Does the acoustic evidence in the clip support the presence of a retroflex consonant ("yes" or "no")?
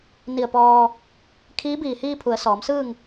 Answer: no